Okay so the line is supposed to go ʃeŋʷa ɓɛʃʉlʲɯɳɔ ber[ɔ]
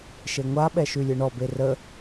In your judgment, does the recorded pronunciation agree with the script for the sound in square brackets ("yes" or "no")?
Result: no